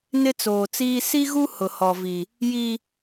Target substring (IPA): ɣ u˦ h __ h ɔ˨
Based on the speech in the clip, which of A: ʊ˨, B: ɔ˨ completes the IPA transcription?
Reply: A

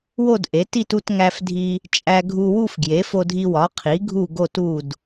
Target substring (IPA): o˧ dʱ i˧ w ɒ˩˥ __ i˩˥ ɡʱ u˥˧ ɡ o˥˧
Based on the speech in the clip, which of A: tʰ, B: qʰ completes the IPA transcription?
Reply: B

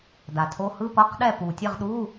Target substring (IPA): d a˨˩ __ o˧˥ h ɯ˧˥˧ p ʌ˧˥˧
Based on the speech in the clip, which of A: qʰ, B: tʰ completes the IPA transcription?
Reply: B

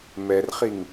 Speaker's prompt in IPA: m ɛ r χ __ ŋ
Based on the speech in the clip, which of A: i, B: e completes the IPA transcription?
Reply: A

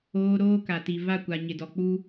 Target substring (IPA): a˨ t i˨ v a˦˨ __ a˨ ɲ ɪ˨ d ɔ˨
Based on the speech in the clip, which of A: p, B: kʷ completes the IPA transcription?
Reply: B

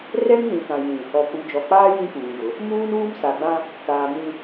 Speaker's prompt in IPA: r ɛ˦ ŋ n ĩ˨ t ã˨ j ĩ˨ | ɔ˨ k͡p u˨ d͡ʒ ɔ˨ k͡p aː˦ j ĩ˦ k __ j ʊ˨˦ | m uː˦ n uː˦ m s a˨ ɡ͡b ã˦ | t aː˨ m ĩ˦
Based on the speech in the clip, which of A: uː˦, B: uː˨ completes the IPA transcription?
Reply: B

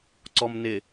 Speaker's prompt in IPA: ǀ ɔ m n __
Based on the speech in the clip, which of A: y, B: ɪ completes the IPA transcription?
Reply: B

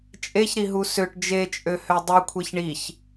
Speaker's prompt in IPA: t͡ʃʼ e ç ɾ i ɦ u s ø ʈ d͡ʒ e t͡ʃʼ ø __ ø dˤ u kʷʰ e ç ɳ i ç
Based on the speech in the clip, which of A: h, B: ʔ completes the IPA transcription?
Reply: A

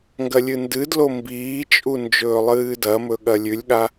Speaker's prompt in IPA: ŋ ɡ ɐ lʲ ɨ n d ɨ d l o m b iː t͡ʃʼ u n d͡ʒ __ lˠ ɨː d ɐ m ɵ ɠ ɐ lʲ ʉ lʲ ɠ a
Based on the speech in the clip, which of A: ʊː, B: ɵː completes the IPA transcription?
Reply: B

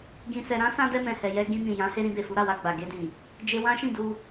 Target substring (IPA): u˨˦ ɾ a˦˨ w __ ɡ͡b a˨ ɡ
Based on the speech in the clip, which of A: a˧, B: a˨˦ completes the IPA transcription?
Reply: A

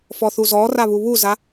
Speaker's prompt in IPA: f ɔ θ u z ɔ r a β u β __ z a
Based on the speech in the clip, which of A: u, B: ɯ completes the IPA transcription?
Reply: A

